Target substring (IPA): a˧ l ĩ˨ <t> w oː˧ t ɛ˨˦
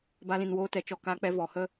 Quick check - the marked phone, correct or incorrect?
incorrect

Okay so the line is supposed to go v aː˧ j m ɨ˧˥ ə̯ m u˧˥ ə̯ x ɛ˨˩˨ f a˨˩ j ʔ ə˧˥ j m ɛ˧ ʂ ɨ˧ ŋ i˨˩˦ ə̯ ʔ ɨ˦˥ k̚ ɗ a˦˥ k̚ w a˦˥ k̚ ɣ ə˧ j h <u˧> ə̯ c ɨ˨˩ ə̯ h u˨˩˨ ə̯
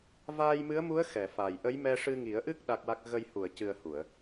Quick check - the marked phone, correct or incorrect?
incorrect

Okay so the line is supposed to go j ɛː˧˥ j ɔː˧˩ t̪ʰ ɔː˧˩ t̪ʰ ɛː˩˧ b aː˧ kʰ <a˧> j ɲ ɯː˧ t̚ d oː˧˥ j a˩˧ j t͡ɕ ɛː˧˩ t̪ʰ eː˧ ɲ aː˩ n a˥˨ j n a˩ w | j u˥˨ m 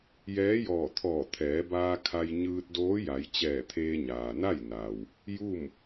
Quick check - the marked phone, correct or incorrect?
correct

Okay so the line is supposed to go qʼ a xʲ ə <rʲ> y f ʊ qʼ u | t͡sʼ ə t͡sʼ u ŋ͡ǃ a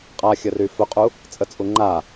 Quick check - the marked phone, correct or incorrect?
incorrect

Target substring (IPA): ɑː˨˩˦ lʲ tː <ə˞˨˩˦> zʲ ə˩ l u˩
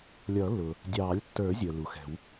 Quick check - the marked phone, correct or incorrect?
correct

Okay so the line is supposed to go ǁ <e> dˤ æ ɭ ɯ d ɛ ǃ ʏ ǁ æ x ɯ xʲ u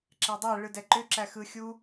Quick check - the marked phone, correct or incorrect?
incorrect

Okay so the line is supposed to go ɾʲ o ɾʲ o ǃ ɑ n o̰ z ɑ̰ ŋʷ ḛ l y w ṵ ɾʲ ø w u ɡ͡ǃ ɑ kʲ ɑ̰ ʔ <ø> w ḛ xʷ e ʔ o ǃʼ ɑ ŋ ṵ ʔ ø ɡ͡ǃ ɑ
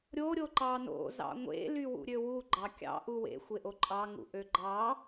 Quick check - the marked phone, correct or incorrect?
incorrect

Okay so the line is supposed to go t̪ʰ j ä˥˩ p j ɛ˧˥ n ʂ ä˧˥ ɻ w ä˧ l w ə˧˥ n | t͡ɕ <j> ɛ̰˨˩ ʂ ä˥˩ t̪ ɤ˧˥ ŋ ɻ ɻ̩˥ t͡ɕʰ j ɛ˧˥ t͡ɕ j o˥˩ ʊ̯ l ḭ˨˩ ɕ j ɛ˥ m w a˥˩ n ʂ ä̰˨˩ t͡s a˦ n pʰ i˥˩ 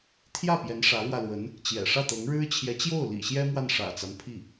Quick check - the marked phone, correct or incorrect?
correct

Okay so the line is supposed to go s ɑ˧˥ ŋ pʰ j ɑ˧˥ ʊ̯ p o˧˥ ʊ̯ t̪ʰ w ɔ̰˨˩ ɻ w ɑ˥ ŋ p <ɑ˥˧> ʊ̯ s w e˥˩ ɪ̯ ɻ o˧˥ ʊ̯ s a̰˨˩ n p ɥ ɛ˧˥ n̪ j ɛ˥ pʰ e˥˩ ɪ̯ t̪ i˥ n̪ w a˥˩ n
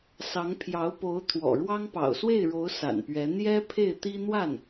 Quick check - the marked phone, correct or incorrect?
incorrect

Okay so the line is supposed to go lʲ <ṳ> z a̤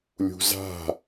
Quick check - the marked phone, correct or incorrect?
correct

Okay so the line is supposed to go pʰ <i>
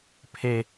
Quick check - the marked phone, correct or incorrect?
incorrect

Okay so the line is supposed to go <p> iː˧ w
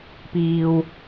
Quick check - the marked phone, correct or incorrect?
correct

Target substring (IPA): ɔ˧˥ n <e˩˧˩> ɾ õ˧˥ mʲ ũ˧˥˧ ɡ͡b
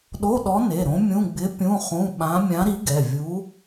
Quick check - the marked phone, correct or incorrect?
correct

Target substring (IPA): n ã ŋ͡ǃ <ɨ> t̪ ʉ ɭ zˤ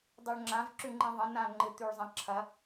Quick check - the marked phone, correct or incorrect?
correct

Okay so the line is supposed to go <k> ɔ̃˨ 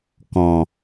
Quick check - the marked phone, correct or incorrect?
correct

